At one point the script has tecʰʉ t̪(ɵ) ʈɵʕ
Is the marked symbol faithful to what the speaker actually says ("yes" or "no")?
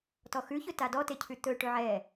yes